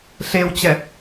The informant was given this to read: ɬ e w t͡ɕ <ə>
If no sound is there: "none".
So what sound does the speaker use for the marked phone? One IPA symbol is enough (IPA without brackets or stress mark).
ɛ